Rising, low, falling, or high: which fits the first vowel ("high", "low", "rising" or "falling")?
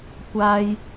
high